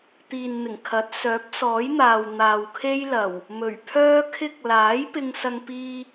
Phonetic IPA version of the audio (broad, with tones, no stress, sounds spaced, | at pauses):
t̪ iː˨ n n̪ ɪ˨˩ ŋ kʰ ɐ˨˥ t̚ s œː˨˥ p̚ s ɔː˨˥ j n̪ aː˨ w n̪ aː˨ w kʰ e˥ j l ɐ˨˩ w | m ɵ˨˩ ɥ pʰ œː˥ kʰ ɪ˥ k̚ l aː˨˥ j p ɪ˥ ŋ s ɐ˥ ŋ p iː˥